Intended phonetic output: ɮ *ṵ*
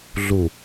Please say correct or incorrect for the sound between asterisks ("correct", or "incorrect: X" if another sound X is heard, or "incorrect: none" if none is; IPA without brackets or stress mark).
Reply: incorrect: u